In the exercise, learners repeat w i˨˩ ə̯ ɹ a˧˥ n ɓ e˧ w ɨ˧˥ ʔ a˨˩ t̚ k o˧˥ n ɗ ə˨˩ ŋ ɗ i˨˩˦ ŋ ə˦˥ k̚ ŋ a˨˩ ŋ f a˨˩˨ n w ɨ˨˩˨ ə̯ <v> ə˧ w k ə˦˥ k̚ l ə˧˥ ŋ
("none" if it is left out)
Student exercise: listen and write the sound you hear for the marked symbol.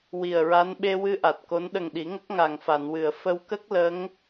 f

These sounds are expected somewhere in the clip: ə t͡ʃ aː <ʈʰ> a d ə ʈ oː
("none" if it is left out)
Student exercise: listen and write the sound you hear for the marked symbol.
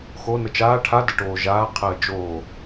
ʈʰ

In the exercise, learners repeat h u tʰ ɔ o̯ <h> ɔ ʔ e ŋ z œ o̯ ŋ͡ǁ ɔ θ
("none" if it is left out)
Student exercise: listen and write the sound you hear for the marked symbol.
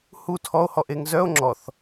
h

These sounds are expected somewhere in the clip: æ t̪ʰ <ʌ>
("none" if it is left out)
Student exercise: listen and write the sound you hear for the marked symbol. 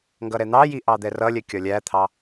ɑ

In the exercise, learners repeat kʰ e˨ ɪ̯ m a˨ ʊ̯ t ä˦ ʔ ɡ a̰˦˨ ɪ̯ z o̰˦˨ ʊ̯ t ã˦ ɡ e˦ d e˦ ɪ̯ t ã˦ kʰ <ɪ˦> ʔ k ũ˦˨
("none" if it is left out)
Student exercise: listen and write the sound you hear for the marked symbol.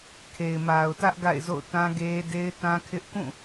ɪ˦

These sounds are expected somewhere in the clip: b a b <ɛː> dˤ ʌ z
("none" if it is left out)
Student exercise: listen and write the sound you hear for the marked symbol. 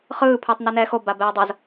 ɛː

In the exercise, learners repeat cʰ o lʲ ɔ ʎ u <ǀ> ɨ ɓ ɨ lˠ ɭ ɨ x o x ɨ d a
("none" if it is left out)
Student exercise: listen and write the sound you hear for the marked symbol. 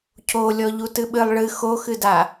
t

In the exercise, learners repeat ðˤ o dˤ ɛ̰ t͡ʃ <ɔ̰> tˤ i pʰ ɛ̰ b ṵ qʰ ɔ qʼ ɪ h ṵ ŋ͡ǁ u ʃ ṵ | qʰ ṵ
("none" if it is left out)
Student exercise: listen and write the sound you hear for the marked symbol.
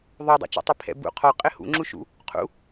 ɔ̰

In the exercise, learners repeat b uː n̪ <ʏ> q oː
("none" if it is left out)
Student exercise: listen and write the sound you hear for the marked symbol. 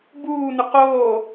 ʏ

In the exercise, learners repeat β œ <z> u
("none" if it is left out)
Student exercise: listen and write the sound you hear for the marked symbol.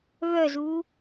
z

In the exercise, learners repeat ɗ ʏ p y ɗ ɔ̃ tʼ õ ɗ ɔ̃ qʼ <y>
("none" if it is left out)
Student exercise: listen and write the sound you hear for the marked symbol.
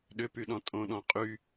y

